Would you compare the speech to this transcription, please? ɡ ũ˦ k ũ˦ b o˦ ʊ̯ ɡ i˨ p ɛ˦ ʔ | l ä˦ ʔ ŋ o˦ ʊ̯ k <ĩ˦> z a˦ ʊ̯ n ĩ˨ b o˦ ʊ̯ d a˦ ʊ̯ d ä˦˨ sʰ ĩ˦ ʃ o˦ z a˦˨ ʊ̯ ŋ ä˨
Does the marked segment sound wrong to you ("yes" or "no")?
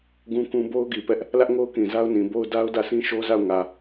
yes